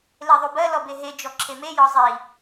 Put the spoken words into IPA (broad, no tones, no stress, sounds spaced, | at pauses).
l e ðˤ u b ɜ l ɔ b e ɦ e d͡ʒ ɔ ǁʰ e m e j ɔ zˤ i